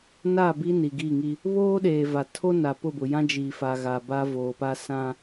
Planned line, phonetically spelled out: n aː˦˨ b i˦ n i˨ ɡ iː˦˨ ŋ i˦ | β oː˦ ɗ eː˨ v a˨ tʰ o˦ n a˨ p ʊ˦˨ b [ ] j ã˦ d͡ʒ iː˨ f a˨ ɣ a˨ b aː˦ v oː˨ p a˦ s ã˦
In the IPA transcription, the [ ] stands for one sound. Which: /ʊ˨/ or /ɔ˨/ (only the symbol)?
ʊ˨